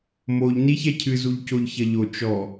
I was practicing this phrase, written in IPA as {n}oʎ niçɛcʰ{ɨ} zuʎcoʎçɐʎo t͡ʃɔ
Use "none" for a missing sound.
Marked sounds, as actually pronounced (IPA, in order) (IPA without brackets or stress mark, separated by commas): m, ɨ